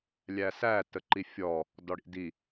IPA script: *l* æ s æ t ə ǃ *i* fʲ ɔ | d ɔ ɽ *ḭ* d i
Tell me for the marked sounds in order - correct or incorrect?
incorrect, correct, correct

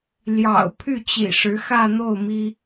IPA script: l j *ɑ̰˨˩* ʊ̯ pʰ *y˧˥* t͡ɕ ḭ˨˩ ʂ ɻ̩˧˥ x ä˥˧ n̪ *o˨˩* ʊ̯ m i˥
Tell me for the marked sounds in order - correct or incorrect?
correct, incorrect, incorrect

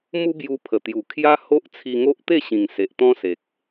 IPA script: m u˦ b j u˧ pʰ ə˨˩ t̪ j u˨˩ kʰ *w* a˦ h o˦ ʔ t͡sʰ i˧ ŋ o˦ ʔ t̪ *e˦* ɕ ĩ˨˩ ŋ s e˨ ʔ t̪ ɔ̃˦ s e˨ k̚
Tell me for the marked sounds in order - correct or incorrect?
incorrect, incorrect

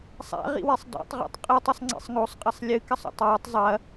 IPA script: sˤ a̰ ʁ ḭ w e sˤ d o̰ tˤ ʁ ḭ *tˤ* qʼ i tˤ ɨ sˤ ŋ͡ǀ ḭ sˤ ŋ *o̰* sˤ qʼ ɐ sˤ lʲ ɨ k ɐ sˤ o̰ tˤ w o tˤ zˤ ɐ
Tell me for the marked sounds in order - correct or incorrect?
correct, incorrect

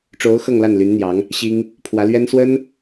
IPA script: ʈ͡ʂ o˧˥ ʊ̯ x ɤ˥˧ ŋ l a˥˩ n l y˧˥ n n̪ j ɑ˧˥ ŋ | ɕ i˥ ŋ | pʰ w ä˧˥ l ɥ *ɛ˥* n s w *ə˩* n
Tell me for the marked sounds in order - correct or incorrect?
correct, incorrect

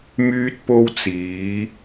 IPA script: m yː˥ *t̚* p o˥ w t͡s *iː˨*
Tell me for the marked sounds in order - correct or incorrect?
correct, incorrect

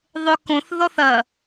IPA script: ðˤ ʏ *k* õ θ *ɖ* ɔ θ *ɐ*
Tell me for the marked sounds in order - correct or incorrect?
correct, incorrect, correct

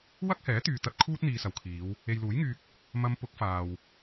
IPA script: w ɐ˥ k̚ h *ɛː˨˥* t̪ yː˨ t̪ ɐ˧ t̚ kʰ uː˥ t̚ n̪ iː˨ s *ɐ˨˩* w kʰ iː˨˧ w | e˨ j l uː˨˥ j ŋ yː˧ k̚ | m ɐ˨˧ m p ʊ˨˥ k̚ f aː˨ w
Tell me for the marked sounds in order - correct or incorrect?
correct, correct

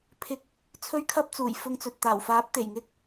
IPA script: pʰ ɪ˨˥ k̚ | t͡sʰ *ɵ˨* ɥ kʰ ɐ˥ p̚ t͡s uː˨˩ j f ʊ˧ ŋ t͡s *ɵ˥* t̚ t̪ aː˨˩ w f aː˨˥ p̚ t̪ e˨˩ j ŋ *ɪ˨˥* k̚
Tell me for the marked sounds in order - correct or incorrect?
incorrect, incorrect, incorrect

